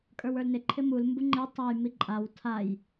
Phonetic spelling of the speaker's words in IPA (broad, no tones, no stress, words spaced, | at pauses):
kʼə˞wə˞lnɪ ǃʰɪmul mbuŋ͡ǃe tˤaj miǃʼaw tʰaj